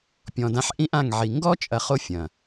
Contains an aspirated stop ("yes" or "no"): no